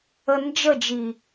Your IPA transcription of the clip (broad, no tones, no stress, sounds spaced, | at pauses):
ə n d͡ʒ ə d͡ʒ i